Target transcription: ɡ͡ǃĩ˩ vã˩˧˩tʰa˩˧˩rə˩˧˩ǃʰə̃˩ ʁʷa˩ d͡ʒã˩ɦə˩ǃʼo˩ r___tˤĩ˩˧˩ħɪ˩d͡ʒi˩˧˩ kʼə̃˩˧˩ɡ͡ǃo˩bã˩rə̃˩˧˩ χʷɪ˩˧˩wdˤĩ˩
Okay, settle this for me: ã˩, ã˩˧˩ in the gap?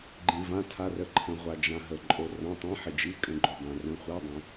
ã˩˧˩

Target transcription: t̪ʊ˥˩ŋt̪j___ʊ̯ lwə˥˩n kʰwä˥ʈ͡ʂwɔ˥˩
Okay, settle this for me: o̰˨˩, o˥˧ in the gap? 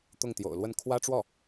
o̰˨˩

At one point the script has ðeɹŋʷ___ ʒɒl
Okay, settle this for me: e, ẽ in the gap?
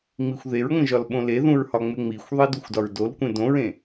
ẽ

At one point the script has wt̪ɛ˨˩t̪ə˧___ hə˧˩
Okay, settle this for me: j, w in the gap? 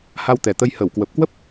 j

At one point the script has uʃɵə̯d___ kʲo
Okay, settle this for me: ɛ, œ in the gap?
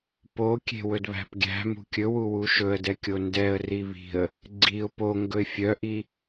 ɛ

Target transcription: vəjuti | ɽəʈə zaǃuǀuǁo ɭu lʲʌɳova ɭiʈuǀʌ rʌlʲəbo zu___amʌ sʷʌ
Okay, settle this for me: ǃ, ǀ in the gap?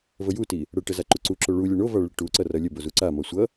ǀ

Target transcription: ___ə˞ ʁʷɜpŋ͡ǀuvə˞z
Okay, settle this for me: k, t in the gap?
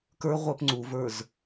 k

